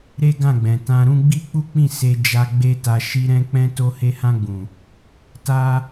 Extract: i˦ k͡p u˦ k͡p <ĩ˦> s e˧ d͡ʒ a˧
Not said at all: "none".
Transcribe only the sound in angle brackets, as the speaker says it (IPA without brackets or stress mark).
ĩ˦˨